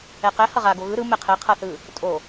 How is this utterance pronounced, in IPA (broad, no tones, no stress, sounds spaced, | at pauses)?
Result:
ɛ q ɛ h ʌ ʁ a ɡ o ɣ ɯ ɾ ɯ m ɛ qʰ ɛ qʰ ʌ θ ɯ | tʼ o